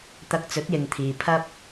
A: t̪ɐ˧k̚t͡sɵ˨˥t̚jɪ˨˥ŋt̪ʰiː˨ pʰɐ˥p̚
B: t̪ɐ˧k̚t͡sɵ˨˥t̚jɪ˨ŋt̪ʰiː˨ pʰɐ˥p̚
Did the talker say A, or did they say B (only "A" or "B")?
B